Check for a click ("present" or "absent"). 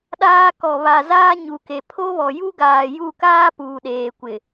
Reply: absent